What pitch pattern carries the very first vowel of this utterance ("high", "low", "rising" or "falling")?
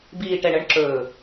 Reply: low